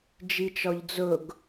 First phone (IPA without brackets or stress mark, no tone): d͡ʒ